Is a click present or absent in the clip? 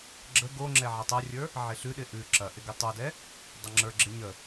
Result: present